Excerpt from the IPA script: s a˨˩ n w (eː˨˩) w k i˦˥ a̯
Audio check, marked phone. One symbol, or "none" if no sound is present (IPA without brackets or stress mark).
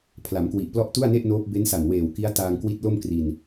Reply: eː˨˩